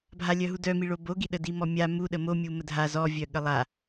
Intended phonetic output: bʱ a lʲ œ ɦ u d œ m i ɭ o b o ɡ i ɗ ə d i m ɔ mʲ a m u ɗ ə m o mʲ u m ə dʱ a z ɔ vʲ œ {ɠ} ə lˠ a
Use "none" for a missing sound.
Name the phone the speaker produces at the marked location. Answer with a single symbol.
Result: ɠ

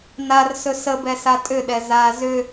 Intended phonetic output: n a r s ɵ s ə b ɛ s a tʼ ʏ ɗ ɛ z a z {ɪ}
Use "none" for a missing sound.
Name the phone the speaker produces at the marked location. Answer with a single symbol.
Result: ʏ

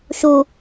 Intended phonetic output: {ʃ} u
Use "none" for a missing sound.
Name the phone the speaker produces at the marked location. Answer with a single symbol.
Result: ʃ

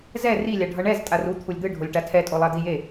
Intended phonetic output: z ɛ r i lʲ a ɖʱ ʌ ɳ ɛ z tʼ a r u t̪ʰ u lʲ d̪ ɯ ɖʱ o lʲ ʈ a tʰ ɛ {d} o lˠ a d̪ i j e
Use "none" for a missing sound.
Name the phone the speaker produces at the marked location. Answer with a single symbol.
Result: tʼ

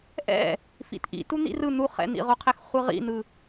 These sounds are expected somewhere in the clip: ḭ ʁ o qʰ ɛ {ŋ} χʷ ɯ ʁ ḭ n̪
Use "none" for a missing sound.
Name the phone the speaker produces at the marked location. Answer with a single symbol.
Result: x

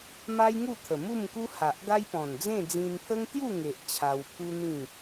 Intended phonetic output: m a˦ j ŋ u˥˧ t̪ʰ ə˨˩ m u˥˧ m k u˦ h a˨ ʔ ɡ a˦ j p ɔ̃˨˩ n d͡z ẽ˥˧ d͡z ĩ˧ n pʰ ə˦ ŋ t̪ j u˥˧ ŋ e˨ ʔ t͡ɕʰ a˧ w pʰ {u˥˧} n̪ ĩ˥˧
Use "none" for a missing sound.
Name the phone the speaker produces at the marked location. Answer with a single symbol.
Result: u˦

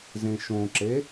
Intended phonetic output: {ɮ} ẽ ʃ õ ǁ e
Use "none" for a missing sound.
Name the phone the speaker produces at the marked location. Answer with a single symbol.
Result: z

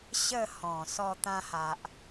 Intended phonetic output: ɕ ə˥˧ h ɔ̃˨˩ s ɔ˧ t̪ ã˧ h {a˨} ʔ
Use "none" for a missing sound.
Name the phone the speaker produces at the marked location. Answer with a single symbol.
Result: a˨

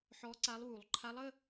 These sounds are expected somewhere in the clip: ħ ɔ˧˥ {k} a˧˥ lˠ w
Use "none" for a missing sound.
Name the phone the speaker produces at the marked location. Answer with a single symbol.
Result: ǀ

